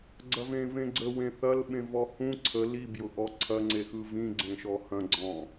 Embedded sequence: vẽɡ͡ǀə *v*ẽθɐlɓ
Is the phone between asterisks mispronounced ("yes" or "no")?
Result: yes